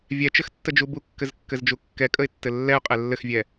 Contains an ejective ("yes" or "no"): yes